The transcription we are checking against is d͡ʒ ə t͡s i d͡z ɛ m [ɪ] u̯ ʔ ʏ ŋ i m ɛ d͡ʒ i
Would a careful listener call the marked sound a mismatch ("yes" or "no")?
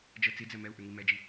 yes